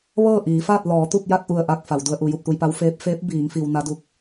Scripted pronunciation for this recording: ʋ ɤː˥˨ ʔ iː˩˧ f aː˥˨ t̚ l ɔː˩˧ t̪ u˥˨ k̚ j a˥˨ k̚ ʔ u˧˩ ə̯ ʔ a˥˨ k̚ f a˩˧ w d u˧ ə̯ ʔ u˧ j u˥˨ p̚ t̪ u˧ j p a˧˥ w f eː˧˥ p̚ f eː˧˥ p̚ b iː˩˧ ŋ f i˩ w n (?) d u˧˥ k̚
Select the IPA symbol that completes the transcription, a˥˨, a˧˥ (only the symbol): a˧˥